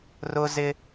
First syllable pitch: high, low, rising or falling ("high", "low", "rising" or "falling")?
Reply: high